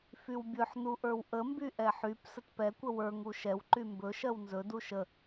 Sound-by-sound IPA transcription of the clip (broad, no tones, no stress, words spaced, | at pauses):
fywbʲɵħ nuʔə˞wʔəmby ʔɛħyp sətpɛ kʷəwə˞ ŋuʃɛw ǃymbɵ ʃɜwnzɵ duʃə